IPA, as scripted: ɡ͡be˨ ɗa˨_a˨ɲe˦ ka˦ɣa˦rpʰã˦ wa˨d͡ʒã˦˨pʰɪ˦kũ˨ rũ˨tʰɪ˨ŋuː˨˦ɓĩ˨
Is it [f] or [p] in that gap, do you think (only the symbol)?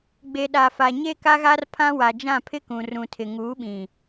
f